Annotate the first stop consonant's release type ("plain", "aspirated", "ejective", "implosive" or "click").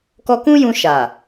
plain